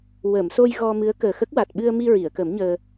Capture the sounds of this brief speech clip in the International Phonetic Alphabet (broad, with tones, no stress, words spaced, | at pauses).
wə˨˩˨mso˧j ɣɔ˧mɨ˧˥ə̯ kəː˨˩xə˦˥k̚ wa˨˩t̚ɓɨ˧ə̯mi˧ ɹi˨˩˨ə̯kə˨˩˦mɲəː˧